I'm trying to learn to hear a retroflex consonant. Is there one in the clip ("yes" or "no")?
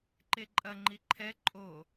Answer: no